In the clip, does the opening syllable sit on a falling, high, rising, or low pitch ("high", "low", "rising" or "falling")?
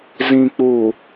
low